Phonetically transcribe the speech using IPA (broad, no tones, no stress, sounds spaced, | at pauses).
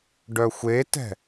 ɖ œ xʷ e t ɛ̤